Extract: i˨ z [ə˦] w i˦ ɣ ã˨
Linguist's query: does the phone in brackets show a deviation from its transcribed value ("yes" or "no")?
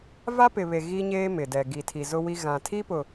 yes